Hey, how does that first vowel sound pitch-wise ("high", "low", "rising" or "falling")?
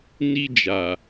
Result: high